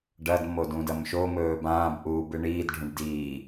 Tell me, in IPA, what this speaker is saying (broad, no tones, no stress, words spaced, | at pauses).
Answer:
ɖɐd modũdɐmʃo mɵːbãːb ʔuːbɨɳiːdɖʱũɖ diː